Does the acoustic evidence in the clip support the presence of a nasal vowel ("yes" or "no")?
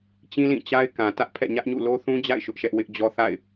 yes